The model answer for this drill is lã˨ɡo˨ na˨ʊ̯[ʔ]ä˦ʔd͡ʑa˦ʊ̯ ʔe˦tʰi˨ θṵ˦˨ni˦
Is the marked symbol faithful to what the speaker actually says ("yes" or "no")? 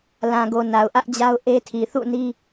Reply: yes